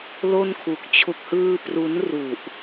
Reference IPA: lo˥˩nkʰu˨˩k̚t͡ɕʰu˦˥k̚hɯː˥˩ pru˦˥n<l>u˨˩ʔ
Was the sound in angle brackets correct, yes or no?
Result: no